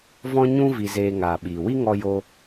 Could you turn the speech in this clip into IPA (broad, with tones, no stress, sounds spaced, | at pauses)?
v ɔ̃˦ ɲ ũ˦ v i˧ z eː˧ ŋ aː˨ ɓ iː˨ w i˦ ŋ ɔ˧ j o˧